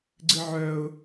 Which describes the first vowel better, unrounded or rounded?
unrounded